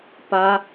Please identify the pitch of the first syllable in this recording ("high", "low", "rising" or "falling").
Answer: high